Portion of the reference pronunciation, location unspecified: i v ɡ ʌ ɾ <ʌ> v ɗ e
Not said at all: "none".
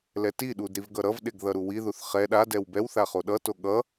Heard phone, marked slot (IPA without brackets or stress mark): ʌ